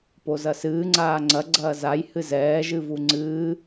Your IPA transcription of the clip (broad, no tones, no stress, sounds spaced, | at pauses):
p o z ɐ s ɨː ŋ͡ǀ aː ŋ͡ǀ ɐ ɡ͡ǀ ɐː z a j h ɨ z ɛː ʒ ɨ v u ŋ͡ǀ ɨː